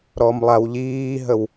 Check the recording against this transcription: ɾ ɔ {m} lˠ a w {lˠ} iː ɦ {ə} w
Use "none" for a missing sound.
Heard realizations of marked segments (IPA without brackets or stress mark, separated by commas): m, ʎ, ə